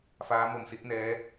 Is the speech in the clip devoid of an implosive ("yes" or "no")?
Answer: yes